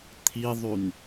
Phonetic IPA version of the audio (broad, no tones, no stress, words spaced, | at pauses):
t̪ʰiðˤyn